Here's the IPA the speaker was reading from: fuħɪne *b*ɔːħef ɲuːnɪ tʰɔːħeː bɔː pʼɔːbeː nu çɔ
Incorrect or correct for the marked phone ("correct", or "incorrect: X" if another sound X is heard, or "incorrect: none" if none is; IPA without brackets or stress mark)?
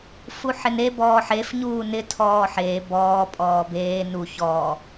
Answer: correct